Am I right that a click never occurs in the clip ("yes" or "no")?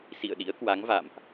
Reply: yes